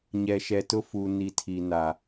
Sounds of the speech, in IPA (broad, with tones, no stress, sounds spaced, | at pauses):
ɲ ɛ˨ ʃ ɛ˨ t ʊ˦ f u˨ n i˨ tʰ i˨ n a˨